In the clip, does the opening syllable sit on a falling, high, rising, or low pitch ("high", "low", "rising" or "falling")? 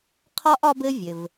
high